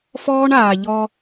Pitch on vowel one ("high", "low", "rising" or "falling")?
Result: high